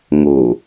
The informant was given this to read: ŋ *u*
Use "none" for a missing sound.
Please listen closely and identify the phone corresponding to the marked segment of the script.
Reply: o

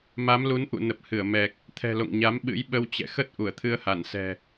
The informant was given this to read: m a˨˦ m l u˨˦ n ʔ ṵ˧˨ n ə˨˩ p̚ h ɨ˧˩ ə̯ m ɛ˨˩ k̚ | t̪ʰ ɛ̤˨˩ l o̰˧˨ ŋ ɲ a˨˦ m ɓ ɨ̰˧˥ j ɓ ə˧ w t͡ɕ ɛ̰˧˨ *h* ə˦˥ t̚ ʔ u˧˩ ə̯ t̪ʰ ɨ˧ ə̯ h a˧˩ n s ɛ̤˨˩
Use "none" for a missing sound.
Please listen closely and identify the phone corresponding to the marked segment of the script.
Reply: x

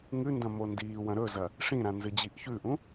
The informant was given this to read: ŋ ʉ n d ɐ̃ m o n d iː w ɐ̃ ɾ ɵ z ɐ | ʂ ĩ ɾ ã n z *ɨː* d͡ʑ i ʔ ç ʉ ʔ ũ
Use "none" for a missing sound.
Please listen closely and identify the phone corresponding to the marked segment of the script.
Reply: ɨ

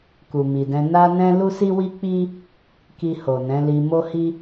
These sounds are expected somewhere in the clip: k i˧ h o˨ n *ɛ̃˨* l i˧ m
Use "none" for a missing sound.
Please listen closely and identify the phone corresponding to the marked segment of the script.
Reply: ɛ̃˨˦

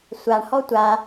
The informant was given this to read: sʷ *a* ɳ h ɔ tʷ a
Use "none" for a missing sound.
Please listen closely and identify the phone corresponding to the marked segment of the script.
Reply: a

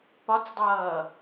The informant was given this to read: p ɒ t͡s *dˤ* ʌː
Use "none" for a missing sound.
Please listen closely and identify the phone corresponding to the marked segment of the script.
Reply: dˤ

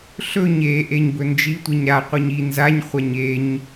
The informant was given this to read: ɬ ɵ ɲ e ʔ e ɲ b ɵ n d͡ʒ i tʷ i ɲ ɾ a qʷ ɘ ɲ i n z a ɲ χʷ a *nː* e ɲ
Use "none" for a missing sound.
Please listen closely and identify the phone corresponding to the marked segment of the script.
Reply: ɲ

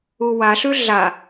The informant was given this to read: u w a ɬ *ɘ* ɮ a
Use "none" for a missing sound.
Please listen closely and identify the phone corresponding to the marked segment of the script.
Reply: ʉ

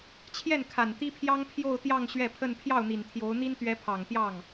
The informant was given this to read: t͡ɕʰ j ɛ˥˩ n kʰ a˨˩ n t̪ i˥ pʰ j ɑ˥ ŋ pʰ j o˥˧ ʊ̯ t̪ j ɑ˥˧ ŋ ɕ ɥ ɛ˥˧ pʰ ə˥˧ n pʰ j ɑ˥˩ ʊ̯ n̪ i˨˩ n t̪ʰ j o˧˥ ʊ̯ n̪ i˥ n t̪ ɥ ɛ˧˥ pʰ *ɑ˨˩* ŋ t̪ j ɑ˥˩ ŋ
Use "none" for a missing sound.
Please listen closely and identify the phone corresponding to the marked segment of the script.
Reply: ɑ˨˩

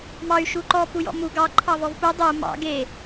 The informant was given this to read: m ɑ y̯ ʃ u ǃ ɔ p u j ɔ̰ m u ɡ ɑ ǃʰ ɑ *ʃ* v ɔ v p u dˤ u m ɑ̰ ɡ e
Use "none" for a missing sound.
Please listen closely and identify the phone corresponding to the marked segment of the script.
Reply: none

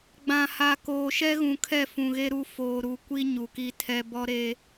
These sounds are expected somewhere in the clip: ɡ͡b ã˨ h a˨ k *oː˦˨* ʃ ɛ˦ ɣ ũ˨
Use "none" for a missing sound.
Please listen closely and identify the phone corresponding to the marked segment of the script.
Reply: oː˨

